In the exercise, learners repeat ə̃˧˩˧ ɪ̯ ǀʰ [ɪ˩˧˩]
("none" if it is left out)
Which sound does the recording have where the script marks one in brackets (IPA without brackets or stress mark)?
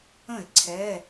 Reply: ɛ˩˧˩